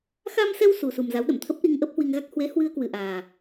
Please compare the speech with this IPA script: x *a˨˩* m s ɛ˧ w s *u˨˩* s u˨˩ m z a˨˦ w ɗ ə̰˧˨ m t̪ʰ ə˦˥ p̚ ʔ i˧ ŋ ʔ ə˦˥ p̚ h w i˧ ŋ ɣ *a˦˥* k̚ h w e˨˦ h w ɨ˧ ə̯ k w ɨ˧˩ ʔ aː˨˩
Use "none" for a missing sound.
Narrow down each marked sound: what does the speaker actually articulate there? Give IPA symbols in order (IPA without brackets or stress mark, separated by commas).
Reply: a˧, u˨˩, a˦˥